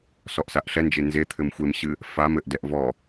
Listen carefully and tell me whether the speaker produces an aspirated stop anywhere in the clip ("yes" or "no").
yes